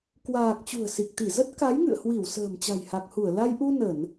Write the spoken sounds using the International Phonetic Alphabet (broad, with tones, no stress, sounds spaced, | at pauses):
k w aː˨˩ k̚ t͡ɕ ṳ˨˩ ə̯ s i˨˩ k̚ t̪ i˧˩ z ə˦˥ t̚ k a˨˦ j ŋ ɨ̰˧˨ ə̯ h w i˧˩ w s ə̤ː˨˩ m t͡ɕ a̤˨˩ j h a˨˩ k̚ h u˧˩ ə̯ l a˧ j ʔ u˧ n ə˧˩˨ n